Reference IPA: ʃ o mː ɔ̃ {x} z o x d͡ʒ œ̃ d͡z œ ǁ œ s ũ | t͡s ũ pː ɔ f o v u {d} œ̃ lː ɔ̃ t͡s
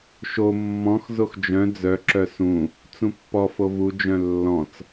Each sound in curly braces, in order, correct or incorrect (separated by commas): correct, incorrect